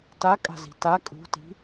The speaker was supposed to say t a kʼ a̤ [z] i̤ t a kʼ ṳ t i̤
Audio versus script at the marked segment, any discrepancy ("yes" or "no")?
no